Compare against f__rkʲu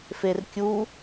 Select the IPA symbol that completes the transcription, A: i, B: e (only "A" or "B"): B